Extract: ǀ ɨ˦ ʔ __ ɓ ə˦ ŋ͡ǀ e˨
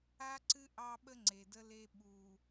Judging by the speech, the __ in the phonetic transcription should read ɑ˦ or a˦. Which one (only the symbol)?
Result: ɑ˦